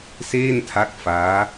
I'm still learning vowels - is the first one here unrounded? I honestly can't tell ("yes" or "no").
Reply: yes